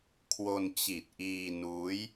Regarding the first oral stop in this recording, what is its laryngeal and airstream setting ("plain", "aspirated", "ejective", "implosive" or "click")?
aspirated